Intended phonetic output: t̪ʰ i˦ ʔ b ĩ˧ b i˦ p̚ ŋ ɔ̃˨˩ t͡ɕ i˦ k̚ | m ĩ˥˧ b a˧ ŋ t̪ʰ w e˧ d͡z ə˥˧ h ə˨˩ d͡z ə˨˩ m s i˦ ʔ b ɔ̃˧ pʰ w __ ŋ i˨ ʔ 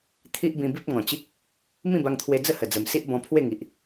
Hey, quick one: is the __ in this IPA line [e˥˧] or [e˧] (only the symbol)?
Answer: e˥˧